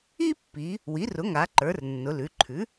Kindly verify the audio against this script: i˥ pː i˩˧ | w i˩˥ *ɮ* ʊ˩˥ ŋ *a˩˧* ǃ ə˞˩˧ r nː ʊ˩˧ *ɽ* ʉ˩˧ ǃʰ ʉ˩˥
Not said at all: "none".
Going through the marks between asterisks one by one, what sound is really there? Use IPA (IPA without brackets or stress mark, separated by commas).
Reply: r, a˩˧, l